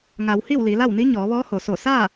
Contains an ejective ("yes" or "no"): no